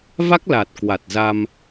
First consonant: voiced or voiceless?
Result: voiced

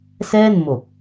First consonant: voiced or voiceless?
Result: voiceless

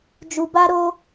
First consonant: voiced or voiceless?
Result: voiced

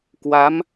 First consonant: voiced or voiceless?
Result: voiceless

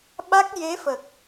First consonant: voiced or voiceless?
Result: voiced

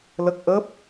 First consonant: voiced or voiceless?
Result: voiced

